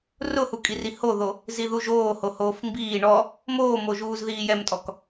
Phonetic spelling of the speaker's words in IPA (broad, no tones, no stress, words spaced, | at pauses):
rʊhukʼiri hoðo | ziðuʒoː hohoːfmbiː ɳɔ | moːmoʒuːz ðiːjɛmtʼɔk